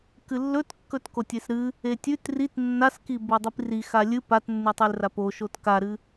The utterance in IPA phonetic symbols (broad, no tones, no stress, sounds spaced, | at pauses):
k ɨ lː ɵ t kː ɵ t k o tʲ e s ɾ ɨ | e tʲ ʉ t r i t nː a s k i b o dˤ i p r i x a lʲ ɨ p a t nː ʉ tˤ ɨ l r a p o ʃ o t k a ɾ ɨ